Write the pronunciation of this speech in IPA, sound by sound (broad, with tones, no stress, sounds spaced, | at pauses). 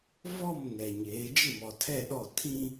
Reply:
v ɔ˦˨ m n ɛ˨ ɲ eː˨˦ d͡ʒ ɪ˦˨ m ɔ˨ tʰ ɛ˦˨ ɗ ɔ˦˨ tʰ ĩ˦